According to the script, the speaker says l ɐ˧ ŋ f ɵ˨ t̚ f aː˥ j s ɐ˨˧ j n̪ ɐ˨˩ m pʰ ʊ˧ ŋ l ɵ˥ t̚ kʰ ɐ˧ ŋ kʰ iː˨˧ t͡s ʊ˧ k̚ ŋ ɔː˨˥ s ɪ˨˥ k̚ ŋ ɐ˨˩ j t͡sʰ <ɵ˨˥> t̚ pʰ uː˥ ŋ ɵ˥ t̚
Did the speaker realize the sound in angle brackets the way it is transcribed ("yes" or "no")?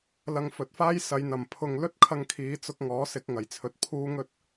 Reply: no